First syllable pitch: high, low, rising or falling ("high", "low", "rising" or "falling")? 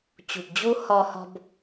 low